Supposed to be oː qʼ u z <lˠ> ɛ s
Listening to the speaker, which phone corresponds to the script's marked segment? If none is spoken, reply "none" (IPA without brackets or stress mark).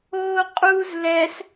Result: l